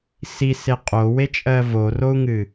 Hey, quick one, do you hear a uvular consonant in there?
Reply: yes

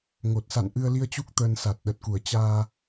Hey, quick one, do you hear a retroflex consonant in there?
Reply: no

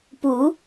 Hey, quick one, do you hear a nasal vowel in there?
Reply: no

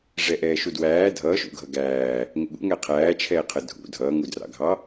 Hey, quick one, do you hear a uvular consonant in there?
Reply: yes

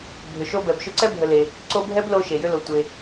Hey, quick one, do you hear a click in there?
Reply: yes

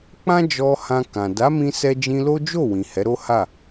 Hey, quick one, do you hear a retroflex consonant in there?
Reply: no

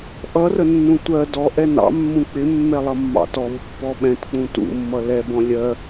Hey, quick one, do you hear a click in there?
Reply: no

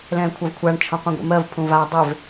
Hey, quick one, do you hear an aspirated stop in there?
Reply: yes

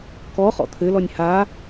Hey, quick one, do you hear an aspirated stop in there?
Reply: yes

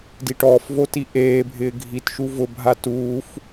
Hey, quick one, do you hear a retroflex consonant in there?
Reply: yes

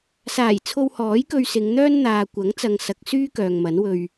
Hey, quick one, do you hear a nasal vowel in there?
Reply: no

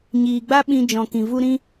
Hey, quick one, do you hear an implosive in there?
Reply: yes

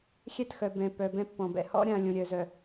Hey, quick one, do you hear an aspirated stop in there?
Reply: no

